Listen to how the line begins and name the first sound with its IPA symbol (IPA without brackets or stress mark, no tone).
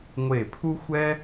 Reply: ŋʷ